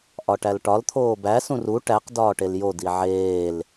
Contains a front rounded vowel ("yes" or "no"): no